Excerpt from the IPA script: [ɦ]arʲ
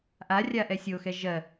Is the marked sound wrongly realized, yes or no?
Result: yes